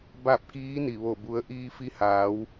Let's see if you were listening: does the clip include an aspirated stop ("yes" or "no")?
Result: no